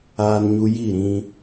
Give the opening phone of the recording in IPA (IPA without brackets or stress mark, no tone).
aː